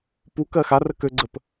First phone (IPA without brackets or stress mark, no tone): p